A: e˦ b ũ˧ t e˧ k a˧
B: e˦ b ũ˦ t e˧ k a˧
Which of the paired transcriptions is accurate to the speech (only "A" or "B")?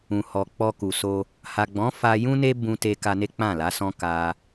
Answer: A